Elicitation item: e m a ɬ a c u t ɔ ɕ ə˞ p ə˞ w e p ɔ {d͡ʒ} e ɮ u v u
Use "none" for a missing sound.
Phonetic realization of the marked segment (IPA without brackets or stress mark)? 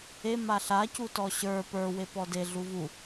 d